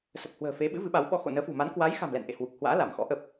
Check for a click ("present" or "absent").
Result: absent